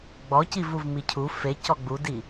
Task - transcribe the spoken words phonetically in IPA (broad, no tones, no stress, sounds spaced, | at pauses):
ɡ͡b ɔ c i v u v m i cʰ u f e c ɔ ɡ͡b u d i